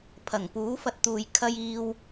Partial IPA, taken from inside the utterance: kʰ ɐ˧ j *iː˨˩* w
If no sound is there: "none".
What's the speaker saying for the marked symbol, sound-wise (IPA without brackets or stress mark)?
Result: iː˧